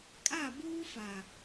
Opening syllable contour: falling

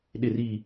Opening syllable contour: falling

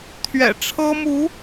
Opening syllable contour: low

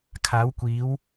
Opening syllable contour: rising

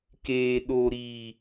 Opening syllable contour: low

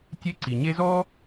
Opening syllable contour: high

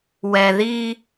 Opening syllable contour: low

